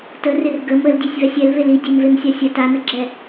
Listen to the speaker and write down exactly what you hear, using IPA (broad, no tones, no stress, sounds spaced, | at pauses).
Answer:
t ə r ɪ r ɡ ə m ə l dʲ e sʲ v ɛ sʲ ɛ l v e l i dʲ e m v e m sʲ a sʲ ə t a n ə ɡ͡ǁ ɛ